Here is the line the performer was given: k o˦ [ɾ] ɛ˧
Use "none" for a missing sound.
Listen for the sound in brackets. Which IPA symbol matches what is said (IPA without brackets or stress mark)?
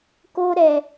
ɾ